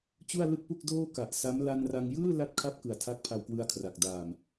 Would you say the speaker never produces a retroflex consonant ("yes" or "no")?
yes